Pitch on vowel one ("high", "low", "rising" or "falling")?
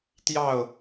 falling